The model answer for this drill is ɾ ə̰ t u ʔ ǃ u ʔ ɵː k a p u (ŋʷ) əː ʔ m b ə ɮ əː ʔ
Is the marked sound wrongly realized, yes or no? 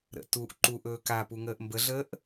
yes